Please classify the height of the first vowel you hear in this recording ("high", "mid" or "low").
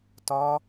low